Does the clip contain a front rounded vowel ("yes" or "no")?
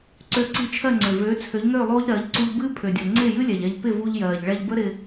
yes